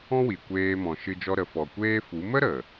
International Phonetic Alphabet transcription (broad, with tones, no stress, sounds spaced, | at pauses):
ɔ̃˦ w i˨ kʷ eː˧ m ɔ̃˨ ʃ ɨ˧ d͡ʒ ɔ˧ ɾ ə˨ f ɔ˨ kʷ eː˦ f u˨˦ m ə˦ ɾ ə˨